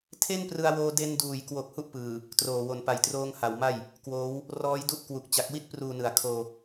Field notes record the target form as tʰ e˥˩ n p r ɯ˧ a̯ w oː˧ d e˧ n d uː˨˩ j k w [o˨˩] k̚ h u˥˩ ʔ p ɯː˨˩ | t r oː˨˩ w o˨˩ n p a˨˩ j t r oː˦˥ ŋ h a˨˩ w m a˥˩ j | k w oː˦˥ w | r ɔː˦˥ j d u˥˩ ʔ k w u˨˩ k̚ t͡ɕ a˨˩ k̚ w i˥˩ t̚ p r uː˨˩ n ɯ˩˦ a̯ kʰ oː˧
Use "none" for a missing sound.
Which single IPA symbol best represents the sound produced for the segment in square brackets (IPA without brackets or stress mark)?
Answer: o˨˩